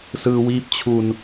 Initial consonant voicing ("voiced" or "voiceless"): voiceless